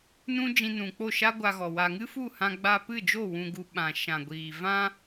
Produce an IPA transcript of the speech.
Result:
n ũ˦ d͡ʒ ĩ˧ n ũ˨ k͡p o˦˨ ʃ a˦ ɡʷ a˧ ɣ ɔ˨ w a˨ ŋ ɨ˦ f u˦˨ h ã˧ ɡ͡b a˧ p ɨ˦˨ d͡ʒ o˦˨ w ũ˧ ɡ u˧ ɓ ã˨ ʃ ã˨ ɡʷ iː˨ v ã˦

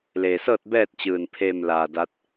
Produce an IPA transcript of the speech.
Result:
l e˩ s ɤː˥˨ t̚ b ɛː˥˨ t̚ t͡ɕ ɯː˧˩ n pʰ eː˥˨ m l aː˧˩ d a˧˥ t̚

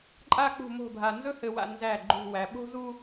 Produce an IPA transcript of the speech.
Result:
ǃʼ a˥ k͡p ṳ˥˧ m o̤˥˧ bʱ a˧ n z ɵ˥ h ɘ˧ w a̰˧ n z æ˧˩ ɡ͡ǃ ṳ˥˧ w æ˧ ɓ o̤˥ z u˥

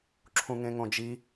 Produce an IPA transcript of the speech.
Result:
ǁʰ ũ ŋ ẽ ŋ õ d͡ʒ i

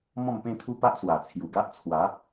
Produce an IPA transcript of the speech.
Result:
m ɔ̃˥˧ m p ẽ˥˧ t̪ʰ u˦ p a˦ ʔ s w a˨˩ t͡sʰ j u˨˩ ɡ a˦ ʔ t͡sʰ w a˨˦

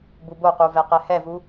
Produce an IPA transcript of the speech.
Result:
b u b o q u v ɛ q ɛ h ɛ v u

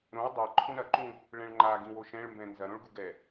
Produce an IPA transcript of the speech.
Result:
ɾ õ w dˤ ɛ ǃʰ ũ ɾ ɐ ǃ ũ | ɭ ɛ̃ ɭ ŋ͡ǃ a ɡ ĩ w o ʃ ɛ̃ ɭ m b ɛ̃ n z ɐ ɾ õ ɭ ɡ u ɡ ɛ

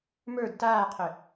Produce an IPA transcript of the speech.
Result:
m ə˞ d t aː qʰ ʏ

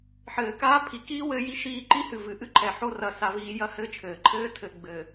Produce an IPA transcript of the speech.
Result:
ħ ɘː˨ k aː˦ pʰ i˨ k iː˦ w ɘ˦ j i˦ ʃ iː˦˨ ǃ i˦ h ɨ˨ v ɨ˨ ʔ ɨ˦ ǃʰ ɛ˨ ħ o˦ r ɐ˦ s a˦ v iː˦ j ɐ˦ h ɘː˦ t͡ʃʰ ɘː˨ ǃʰ ɘː˦ tʰ ɘ˨ ɡ͡b ɘː˨

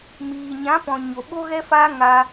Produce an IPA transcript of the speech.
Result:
m iː˨ ɲ ã˨˦ p ɔ̃˨ ɲ o˨ ɓ o˧ ɣ ɛ˧ f aː˧ ŋ a˧

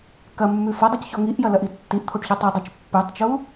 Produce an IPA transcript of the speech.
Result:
k ɐ mː ʉ f ɐ dˤ o c ç o ŋ i ʔ j ɐ l ɐ ʔ i tː i ʔ t̪ʰ o ʈ ç o tˤ o dˤ ə t͡ʃ pː ʉ tˤ t͡ʃ u

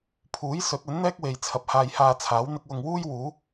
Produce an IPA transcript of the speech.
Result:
pʰ uː˨˥ j s ɵ˨˥ t̚ ɵ˨˥ n n̪ ɛː˥ k̚ w e˨ j t͡sʰ ɐ˨ p̚ h aː˧ j h aː˧ t͡sʰ aː˨˥ w n̪ ɪ˧ k̚ w ʊ˧ ŋ w uː˥ j w uː˨˥

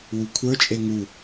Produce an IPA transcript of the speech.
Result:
w u kʷʰ ə˞ t͡ʃʼ e ŋ u

